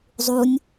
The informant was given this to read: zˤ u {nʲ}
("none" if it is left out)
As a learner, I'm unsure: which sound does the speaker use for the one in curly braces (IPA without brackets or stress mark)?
nʲ